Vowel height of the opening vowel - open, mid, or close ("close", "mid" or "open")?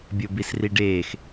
mid